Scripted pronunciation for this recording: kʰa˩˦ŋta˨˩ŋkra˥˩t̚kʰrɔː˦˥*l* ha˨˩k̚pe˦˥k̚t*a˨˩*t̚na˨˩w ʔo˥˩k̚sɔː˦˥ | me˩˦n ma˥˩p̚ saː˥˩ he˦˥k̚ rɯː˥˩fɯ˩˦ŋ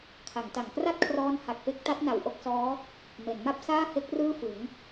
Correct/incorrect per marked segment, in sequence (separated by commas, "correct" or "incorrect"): incorrect, incorrect